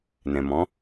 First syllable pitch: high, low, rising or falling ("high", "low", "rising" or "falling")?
low